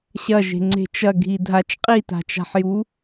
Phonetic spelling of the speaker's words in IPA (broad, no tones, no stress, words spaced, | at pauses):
ɕɐ ʒe̤ŋ͡ǀe̤t͡ʃɐ ɡʱidʱat͡ʃ qʼita̤t͡ʃa̤ħju